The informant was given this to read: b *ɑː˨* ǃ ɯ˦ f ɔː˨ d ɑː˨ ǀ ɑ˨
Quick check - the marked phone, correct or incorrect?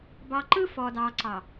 correct